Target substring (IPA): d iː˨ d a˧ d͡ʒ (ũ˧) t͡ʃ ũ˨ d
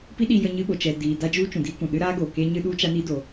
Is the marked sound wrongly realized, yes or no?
yes